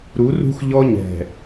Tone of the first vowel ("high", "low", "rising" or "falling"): rising